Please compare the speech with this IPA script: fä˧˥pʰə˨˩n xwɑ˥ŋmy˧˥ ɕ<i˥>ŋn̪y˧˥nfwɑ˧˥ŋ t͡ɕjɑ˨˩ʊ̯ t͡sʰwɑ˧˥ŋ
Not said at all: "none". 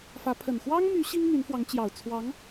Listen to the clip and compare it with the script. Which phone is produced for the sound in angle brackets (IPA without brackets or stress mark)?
i˥